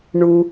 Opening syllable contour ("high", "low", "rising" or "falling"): low